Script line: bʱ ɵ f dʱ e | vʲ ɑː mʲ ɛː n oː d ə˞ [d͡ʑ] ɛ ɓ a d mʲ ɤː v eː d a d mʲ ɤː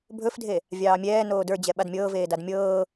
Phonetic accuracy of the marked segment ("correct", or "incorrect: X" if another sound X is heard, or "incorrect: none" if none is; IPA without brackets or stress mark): correct